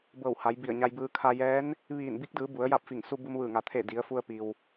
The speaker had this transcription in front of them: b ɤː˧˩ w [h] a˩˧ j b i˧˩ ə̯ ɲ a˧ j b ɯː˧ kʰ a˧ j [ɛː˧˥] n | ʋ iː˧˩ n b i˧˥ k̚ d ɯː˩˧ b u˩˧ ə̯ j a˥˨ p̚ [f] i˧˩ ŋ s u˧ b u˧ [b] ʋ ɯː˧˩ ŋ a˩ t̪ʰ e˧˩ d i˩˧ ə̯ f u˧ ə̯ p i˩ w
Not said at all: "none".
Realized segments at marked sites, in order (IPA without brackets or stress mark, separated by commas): h, ɛː˧˥, f, m